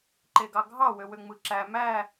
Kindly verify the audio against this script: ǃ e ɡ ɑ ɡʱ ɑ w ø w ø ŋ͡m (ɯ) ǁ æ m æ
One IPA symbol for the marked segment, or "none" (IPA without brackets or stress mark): ɯ